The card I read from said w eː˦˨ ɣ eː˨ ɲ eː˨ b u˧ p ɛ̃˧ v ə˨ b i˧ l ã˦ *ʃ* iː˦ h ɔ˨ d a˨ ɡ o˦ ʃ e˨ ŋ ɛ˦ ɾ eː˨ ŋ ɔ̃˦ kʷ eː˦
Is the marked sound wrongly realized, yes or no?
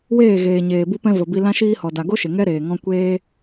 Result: no